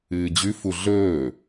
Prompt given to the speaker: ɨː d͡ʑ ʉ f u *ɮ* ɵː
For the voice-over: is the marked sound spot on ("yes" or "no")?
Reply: yes